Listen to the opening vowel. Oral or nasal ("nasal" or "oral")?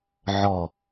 oral